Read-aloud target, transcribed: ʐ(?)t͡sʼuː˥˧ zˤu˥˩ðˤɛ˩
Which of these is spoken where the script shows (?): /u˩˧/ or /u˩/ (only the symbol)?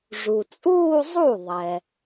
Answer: u˩